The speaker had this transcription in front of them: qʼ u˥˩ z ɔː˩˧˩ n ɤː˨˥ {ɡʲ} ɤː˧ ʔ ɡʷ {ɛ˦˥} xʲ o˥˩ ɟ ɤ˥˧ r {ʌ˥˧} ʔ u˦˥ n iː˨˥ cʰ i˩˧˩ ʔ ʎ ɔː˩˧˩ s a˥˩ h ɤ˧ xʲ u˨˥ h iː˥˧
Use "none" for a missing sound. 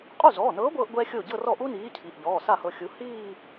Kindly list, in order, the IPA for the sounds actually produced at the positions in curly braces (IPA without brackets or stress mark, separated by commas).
ɡʷ, ɛ˦˥, ɔ˥˧